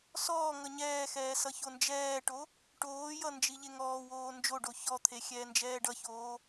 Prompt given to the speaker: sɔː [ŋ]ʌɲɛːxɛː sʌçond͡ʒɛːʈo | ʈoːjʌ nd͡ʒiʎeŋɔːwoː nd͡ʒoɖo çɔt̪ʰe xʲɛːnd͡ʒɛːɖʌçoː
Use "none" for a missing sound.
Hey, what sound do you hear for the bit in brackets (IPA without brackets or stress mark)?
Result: ŋ